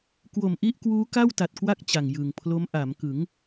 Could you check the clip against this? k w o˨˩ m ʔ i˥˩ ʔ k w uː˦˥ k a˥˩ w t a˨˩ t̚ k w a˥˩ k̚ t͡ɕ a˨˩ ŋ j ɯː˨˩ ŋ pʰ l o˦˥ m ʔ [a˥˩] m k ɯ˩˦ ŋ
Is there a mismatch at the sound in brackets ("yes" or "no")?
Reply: yes